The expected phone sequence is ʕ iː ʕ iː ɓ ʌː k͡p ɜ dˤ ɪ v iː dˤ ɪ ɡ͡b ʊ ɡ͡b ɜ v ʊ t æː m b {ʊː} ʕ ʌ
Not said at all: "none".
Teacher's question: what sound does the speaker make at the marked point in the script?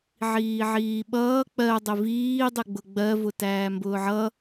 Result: ʊː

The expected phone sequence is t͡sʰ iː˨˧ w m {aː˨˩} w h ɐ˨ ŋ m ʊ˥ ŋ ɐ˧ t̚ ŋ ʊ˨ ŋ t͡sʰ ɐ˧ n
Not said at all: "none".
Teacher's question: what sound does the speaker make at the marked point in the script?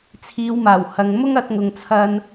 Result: aː˨˩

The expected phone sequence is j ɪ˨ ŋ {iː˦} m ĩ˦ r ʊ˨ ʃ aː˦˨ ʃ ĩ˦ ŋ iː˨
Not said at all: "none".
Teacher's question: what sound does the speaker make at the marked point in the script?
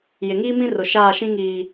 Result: iː˦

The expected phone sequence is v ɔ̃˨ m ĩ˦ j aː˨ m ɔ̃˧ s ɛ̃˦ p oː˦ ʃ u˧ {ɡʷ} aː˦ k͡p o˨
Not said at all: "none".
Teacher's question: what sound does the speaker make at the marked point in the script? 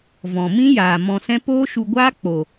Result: ɡʷ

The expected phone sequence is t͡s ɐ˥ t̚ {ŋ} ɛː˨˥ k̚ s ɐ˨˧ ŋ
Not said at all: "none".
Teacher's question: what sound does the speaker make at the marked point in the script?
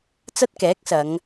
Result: k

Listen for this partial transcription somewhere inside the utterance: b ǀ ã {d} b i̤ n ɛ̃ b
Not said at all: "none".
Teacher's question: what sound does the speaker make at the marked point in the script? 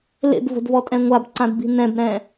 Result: d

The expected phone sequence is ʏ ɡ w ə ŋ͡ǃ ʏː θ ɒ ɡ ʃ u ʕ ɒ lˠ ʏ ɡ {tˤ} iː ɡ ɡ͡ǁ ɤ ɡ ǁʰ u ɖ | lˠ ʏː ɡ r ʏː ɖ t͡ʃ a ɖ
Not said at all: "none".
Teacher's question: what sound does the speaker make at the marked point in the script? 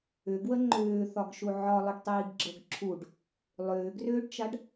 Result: tˤ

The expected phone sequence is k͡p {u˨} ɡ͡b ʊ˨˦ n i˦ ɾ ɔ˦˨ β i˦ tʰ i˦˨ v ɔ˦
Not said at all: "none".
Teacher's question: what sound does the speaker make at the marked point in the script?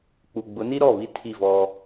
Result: u˨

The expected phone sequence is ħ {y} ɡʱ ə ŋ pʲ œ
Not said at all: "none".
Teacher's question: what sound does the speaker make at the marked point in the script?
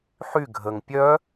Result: y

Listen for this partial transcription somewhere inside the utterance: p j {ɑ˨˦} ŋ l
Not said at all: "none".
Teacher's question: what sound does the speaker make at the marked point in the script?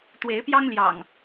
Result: ɑ˦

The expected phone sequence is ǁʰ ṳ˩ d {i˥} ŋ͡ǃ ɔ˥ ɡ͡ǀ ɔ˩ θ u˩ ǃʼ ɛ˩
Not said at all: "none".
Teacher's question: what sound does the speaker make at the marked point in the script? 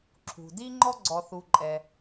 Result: i˥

